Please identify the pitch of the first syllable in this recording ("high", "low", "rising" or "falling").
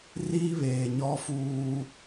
high